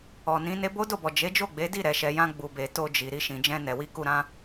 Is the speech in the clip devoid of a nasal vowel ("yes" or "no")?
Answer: no